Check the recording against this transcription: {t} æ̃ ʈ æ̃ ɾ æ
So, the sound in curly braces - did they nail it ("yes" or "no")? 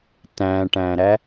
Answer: yes